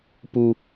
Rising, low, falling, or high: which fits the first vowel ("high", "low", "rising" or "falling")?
high